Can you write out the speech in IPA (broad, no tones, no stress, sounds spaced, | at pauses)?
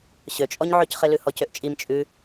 ɕ ø t͡ʃʼ ɔ ɲ ʕ ø c χ e l ʉ h ɔ c ø ʔ t͡ʃʼ i m t͡ʃʼ ʉ